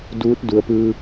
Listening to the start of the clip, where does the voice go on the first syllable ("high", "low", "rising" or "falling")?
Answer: rising